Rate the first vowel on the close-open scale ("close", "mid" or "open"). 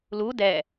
close